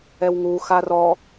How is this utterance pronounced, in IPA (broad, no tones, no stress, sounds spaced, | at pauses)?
ɛ w ŋ u x a r ɔ